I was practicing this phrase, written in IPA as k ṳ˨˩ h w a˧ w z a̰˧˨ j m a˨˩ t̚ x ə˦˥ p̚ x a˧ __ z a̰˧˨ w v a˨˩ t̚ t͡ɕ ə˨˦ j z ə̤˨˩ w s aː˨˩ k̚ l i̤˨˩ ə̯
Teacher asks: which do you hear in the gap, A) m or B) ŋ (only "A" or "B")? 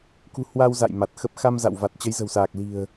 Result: A